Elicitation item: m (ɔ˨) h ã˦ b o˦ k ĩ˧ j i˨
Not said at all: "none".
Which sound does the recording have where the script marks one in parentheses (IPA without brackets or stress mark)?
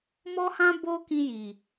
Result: ɔ˦